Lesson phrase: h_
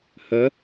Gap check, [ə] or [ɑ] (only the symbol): ə